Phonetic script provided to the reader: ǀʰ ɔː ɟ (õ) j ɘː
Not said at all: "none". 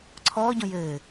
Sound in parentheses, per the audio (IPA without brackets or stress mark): õ